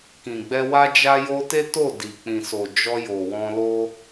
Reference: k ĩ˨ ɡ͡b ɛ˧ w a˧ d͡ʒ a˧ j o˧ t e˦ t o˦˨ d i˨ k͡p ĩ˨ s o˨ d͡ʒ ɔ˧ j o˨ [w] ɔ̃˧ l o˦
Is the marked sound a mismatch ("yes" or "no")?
no